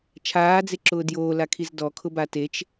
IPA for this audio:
t͡ʃʰaːd͡zeǁʊː djoːlakʰiz dɔkʰʊba tet͡ʃ

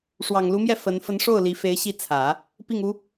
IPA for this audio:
ʂwɑ˨˩ŋlu˧˥mjɛ˥˩ fə˧˥n fə˧˥nʂo˥˩ʊ̯ li˧˥fe˧˥ɪ̯ɕi˥˩ t͡sʰä˨˩˦ | pi˥˩ŋu˥

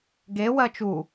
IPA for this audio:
ɡe wɜt͡ʃu

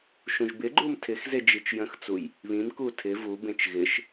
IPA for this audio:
ʃũʒbɪɡ͡ǃum tʰɪxze d͡ʒit͡ʃjə̃xt͡suj | βĩmku tʰɪ vubẽt͡ʃ ɣɪʃ

